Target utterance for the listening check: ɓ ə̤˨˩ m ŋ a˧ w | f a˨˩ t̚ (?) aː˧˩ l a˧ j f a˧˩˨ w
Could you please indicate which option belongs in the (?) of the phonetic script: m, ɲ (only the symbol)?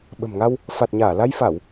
ɲ